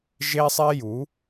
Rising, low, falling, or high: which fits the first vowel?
high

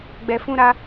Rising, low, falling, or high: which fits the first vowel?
low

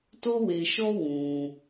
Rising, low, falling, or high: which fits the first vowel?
high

